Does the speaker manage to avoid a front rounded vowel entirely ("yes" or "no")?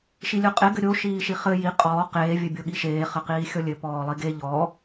yes